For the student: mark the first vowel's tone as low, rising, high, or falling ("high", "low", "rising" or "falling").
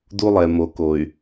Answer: high